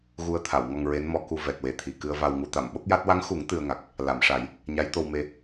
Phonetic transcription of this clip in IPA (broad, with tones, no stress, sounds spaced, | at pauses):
ɣ u˧ ə̯ t̪ʰ a˨˩˨ w ŋ ɔ˧ ŋ ɹ e˧˥ n m ɔ˧ k u˧ v ɛ˨˩ t̚ w e˨˩ t̪ʰ i˨˩ k ɨ˧ ə̯ v a˧ w ŋ u˧ t̪ a˨˩˨ m ɓ o˦˥ k̚ j a˦˥ t̚ w a˧˥ ŋ x u˨˩˦ ŋ t̪ ɨ˧ ə̯ ŋ a˨˩ k̚ | l a˨˩˨ m ʂ a˨˩˦ j | ɲ a˧˥ j t̪ o˧ w m e˧